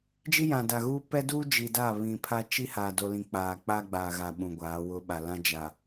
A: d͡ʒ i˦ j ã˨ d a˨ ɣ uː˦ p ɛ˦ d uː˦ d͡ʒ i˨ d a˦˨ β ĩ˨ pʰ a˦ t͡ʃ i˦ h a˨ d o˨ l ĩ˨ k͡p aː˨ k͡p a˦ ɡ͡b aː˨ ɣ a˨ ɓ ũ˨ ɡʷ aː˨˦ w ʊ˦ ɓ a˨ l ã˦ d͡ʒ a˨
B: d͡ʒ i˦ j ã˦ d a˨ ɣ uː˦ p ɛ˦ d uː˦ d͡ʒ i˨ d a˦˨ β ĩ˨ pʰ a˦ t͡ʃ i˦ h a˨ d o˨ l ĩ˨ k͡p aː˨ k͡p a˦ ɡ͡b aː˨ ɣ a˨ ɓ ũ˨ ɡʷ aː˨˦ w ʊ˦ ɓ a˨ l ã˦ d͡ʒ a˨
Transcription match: A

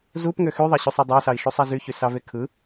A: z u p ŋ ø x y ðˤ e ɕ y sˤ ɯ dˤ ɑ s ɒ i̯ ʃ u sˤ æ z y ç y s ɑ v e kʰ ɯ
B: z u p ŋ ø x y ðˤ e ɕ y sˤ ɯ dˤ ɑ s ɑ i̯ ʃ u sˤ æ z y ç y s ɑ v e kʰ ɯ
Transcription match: B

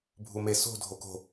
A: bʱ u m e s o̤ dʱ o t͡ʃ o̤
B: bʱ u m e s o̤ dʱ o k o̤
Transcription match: B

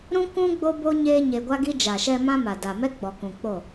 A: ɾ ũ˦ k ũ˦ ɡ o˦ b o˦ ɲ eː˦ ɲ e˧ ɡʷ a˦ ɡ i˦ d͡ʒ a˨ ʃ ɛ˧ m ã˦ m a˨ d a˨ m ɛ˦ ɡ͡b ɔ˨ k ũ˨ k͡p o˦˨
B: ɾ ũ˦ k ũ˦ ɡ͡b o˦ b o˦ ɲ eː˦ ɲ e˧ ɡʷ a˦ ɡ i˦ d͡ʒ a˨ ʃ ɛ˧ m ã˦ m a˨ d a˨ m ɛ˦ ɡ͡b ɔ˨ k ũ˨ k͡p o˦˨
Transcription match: B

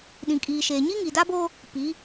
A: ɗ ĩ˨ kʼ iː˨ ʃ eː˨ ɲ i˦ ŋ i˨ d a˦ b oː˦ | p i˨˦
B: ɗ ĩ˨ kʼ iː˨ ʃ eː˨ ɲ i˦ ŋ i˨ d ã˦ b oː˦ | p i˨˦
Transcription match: A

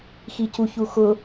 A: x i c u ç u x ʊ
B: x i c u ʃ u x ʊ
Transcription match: A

